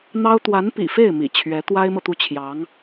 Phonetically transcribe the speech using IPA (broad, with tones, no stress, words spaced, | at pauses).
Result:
n̪ɑ˥ʊ̯ t̪wa˧˥npḭ˨˩fe˥˩ɪ̯ mḭ˨˩t͡ɕʰɥɛ˧˥ t̪wa˥ɪ̯mɤ˨t̪u˥˩t͡ɕʰjɑ˧˥ŋ